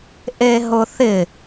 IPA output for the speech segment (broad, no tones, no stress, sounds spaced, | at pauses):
ʔ e ɦ ʊ θ ɪ